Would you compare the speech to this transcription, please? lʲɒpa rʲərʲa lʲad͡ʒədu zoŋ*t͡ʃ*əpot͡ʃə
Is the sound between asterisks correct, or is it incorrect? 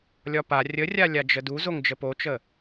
incorrect